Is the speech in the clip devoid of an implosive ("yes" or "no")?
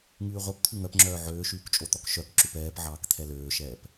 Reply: yes